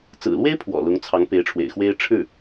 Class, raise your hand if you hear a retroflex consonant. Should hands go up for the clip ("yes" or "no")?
yes